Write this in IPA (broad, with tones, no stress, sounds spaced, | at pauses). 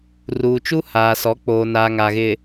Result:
r uː˨ t͡ʃ u˦ h aː˨ s ɔ˨˦ k͡p oː˨ n a˨ ŋ a˨ ɣ ɪ˨